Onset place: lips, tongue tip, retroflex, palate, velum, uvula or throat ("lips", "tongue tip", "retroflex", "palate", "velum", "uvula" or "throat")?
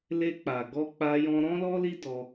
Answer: tongue tip